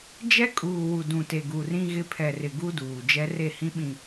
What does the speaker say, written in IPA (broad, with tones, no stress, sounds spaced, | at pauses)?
d͡ʒ ɛ˦ kʼ uː˨ w u˨ d ũ˨ t e˨ ɡ u˨ r ĩ˦ ɣ ɪ˦ pʰ ɛ˨ r ɪ˨ ɡ u˦ d uː˨ d͡ʒ ɛ˦ r e˦˨ h ĩ˦ ɓ ĩ˨